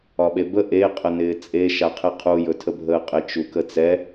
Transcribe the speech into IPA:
ɒ ɓ e b ə ʔ e qʼ ə n ɪː t͡sʼ e ʃ a qʰ e qʰ u j ɵ tʰ ə bʱ əː qʼ ɪ t͡ʃ u k ə t͡s ɛ

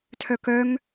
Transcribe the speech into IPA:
tʰ œ k œ ŋ

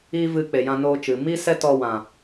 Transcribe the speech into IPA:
i˦ v ɨ˧ k͡p e˨ j ã˧ n oː˧ t͡ʃ ɨ˨ m i˦ s ɛ˦ t ɔ˧ w ã˨

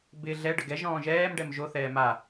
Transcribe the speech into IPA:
b ɪ ɮ ɛ ɖ ə ɡ ɛ ʒ ɔ̃ː ʒ ɛː m ɖ ɛ m ʒ o θ ɛː m a

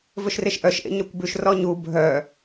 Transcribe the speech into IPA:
v ɵ ʃ r e ʃ ʔ œ ʃ ʔ ḛ ɲ œ kʷ b ʉ ʃ r ɔ ɲ u bʱ œ

